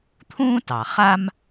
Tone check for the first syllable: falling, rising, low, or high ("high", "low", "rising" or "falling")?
high